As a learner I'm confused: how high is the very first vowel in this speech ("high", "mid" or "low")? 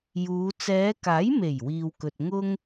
high